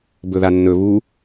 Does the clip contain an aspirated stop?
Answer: no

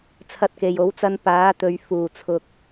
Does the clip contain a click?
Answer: no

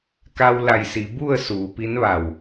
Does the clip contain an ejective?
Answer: no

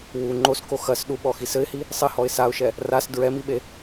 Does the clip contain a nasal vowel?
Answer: no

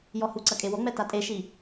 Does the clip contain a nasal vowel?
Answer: no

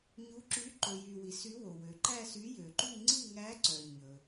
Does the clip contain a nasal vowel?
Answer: no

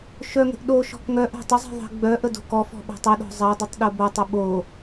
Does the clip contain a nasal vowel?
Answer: no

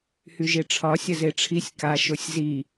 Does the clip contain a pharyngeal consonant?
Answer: no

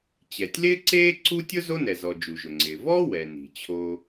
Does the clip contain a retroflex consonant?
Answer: no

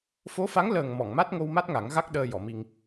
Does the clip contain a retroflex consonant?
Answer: no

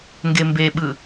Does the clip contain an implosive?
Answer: yes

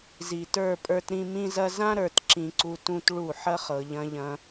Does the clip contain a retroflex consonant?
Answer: yes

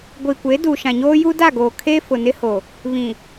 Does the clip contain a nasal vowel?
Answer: yes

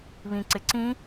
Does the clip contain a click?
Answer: yes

